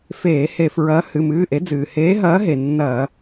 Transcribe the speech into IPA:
f eː˧˩˧ h e˧˩˧ f ɹ ɐː˨˥ h ɨ˩˧˩ m ɨː˩˧˩ ʔ e˨˥ d͡z ɨː˩ h eː˨˥ ɦ ɐː˨˥ ɦ e˩ nː ɐː˧˩˧

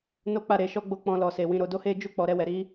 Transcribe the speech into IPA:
n o˦ k͡p a˦˨ ɾ e˧ ʃ ɔ˦ ɡ͡b o˦˨ k͡p ɔ̃˧ l ɔ˨ s e˨ w ĩ˨˦ ɾ o˧ d o˦ h e˦ d͡ʒ u˦˨ k͡p ɔ˨ ɾ ɛ˧ w ɛ˨ ɾ i˨˦

